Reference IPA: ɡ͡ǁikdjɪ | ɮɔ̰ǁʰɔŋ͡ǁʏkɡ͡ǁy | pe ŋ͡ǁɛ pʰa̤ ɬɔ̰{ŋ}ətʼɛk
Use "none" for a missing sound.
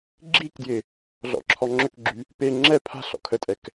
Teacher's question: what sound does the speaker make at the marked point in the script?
kʰ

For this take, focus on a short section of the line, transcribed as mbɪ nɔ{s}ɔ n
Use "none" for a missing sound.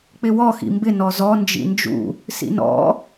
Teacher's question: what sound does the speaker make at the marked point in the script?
z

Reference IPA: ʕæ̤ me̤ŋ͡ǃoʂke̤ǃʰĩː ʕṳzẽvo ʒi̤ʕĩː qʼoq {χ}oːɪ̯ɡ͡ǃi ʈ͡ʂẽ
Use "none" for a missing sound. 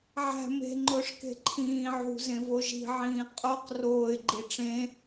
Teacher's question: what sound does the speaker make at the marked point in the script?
r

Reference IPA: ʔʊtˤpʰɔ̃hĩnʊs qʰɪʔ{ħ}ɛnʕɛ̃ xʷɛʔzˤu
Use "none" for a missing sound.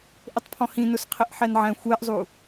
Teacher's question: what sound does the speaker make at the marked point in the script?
ħ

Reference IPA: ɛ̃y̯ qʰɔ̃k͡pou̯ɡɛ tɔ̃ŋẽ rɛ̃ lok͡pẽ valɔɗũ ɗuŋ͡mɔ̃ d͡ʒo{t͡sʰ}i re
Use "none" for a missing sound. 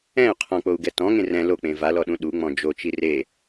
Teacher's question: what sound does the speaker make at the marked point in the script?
t͡ʃ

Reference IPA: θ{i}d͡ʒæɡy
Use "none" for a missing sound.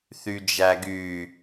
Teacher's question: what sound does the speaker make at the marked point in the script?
y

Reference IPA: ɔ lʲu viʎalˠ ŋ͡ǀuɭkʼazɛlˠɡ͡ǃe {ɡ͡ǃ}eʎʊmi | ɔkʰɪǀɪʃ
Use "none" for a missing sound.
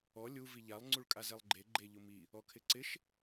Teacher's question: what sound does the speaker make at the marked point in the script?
ɡ͡ǃ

